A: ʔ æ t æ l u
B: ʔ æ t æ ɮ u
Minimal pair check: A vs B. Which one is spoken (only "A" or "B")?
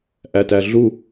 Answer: B